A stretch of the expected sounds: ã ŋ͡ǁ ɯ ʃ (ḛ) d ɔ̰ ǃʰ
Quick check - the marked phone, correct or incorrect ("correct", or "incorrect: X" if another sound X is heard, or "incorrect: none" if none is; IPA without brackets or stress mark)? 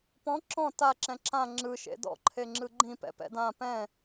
correct